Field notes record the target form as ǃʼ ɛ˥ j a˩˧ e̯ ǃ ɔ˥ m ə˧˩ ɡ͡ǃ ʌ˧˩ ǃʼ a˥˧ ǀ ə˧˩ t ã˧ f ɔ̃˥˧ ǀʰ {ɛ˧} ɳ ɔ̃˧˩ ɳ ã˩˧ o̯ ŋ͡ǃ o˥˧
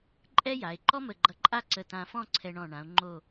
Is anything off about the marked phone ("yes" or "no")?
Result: no